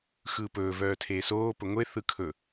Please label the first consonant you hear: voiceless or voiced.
voiceless